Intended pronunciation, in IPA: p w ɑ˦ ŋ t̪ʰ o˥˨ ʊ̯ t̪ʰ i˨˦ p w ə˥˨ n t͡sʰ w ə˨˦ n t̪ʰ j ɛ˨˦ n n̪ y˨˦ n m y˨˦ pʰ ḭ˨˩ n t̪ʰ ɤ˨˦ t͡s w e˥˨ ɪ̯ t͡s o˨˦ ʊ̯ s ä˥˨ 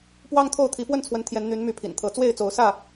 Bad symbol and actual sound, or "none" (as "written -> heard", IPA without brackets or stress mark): none